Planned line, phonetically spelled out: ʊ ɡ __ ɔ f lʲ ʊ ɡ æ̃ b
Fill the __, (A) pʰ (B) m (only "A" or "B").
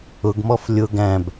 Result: B